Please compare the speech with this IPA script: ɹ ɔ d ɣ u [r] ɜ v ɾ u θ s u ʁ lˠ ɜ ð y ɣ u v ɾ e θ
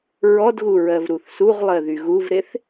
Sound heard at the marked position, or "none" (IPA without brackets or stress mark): ɹ